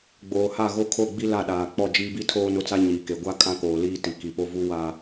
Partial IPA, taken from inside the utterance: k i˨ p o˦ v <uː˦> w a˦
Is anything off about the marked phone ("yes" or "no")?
yes